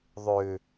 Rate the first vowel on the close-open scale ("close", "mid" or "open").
close